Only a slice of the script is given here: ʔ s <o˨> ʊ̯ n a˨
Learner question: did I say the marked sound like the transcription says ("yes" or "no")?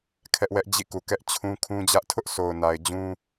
yes